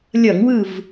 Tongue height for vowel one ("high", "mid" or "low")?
mid